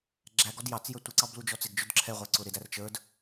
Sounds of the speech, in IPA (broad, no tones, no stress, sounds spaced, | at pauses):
ɡ͡ǁ æ ɡ ɔ d j ɑ t͡s j ə˞ tʷ ɪ ǀ ɑ b l u d͡ʒ ɔ t͡s ɪ ɡ d͡ʒ ʊ d ǁʰ ɛ ʁʷ æ ǀ ʊ ɾ ɪ d æ r t͡ʃ ə˞ d